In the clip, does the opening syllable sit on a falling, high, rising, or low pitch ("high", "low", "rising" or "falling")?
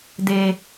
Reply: low